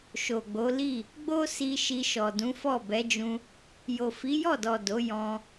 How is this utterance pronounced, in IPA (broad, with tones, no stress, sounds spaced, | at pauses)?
ʃ o˨ ɡ͡b o˨˦ l i˦˨ | ɡ͡b o˦ s i˧ ʃ i˧ ʃ ɔ˨ d ũ˨˦ f ɔ˦˨ b ɛ˨˦ d͡ʒ ũ˧ | j o˨ f i˨˦ j ɔ˦˨ d ɔ˨ d o˨˦ j ɔ̃˧